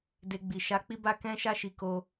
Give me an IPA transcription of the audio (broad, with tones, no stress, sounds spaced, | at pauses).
d e˧ ɡ͡b i˨ ʃ a˧ k͡p i˦ b a˦ k ɛ̃˦ ʃ a˦ ʃ i˧ k o˦